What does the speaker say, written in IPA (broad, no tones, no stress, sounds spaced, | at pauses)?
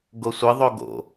ɡ o sʷ ɘ ðˤ o ɡ o̰